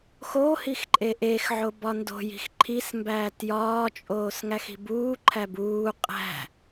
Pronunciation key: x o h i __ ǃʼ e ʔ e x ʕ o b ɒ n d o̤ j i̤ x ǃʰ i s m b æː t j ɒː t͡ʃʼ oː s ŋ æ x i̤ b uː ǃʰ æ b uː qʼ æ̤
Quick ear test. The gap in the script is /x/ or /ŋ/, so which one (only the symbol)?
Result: x